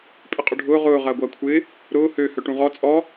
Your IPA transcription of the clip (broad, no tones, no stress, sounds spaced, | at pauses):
pʼ ɪ qʼ ʊ ɖʱ ʊː ʁ ʊː ʁ ɐː ɡʷ ɐː kʷʰ ɪː | ɾ ʊː h ø h œ ʈ ũ ʁ ɔ t͡sʼ ɔ